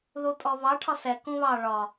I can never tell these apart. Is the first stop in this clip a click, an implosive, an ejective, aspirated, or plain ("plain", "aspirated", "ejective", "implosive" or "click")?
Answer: ejective